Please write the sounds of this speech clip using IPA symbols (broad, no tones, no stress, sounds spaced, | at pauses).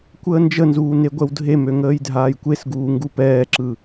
kʷ əː n d͡ʒ ə n z uː n e ɡʷ ɛ w dʱ e m ø ŋ əː j dʱ aː j kʷ e s ɡ uː ŋ ɡ u p ɛː ǁ ɯ